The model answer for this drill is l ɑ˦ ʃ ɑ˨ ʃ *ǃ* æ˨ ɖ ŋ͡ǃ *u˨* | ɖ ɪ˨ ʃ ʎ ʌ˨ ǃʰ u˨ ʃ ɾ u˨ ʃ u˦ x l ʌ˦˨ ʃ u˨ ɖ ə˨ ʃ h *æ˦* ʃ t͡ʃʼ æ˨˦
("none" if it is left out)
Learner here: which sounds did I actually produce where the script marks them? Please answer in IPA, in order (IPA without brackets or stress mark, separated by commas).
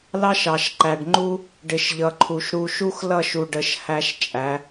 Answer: ǃ, u˦, æ˦